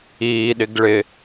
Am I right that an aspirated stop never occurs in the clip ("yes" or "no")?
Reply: yes